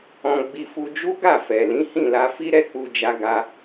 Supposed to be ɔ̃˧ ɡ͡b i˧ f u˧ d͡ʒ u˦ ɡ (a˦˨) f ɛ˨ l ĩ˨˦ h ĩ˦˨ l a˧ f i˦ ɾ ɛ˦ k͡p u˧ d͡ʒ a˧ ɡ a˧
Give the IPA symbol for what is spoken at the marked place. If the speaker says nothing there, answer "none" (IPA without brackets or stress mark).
a˦˨